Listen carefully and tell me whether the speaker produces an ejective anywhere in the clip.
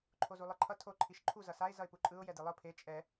yes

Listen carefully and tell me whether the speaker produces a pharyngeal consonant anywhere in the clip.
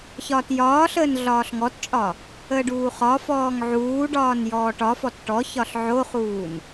yes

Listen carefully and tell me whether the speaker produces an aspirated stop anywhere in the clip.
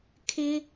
yes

